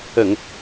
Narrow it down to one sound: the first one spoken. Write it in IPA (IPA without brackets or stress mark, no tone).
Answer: ə